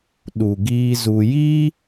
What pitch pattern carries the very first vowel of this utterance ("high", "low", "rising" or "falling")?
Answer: low